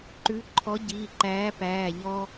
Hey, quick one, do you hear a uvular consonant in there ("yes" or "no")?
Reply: no